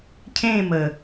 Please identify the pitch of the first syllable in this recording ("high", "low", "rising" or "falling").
falling